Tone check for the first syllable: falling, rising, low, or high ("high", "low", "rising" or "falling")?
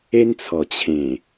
high